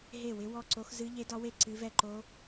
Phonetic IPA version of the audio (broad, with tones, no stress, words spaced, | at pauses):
ɦe˥˨wɪ˦˥ wɔ˥˨ǀo˦˥x zɨ˦˥ʎe˦˥dɒ˦˥we˥˨ ǀɨ˦˥vɛ˥˨ǃo˦˥